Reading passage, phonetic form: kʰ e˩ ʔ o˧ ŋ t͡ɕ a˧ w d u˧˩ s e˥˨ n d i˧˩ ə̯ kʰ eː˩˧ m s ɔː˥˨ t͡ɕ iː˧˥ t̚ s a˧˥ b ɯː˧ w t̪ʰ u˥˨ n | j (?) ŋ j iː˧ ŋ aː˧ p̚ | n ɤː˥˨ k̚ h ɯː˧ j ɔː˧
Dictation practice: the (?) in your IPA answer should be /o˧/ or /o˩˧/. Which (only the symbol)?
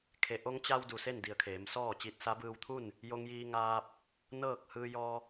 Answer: o˧